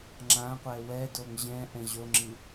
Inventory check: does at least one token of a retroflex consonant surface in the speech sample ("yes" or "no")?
no